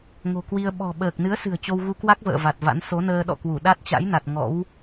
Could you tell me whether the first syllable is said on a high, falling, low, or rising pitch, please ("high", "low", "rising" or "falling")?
low